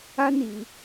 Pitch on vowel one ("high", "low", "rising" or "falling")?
high